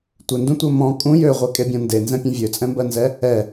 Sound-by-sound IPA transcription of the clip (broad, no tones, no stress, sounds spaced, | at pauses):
tʷ ɪ n d ũ tʷ ɜ m ɔ̃ kʼ ũ j ø ʁʷ e kʼ e bʲ ɔ̃ n d e n z ɛ̃ pʲ ɛ̃ vʲ ø t͡sʼ ɛ̃ m b ɜ n z ɛ | ɛ